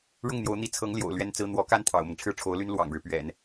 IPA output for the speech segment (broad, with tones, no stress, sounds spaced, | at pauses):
ɻ ʊ˥˩ ŋ n̪ j o˧˥ ʊ̯ n̪ i˧˥ t͡sʰ ɤ˧˥ ŋ l j o̰˨˩ ʊ̯ l ɥ ɛ˥ n t͡s ɹ̩˥ n̪ w ɔ˧˥ k a˥ n t̪ʰ ɑ̰˨˩ ʊ̯ m ɤ˦ ŋ ʈ͡ʂʰ ɻ̩˥˩ ʈ͡ʂʰ o˧˥ ʊ̯ l y˥ n l w ɑ̰˨˩ ŋ ɻ ɻ̩˦ p ɥ ɛ̰˨˩˦ n